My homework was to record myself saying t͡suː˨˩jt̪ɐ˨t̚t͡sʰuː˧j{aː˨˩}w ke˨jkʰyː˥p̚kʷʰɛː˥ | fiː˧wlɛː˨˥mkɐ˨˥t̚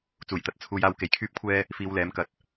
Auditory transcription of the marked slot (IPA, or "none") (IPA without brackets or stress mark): aː˧